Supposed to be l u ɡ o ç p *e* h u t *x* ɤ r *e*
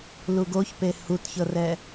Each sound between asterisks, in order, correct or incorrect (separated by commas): correct, incorrect, incorrect